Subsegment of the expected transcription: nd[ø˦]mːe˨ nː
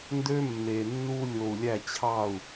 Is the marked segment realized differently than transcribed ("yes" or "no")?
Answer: no